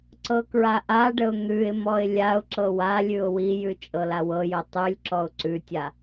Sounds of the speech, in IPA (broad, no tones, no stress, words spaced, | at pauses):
ǀɤkɹaʔaɖəʊ̯ n̪ʉɪ̯mɔɪ̯ lʲaʊ̯ ǁɤwalʲʉʊ̯ wijʉ t͡ʃʼɤlawɤjo tˤʉlʲ ǁɔʊ̯ǀʉtʲa